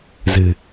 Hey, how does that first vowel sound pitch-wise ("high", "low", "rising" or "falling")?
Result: low